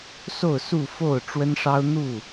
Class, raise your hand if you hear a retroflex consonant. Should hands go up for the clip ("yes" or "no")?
yes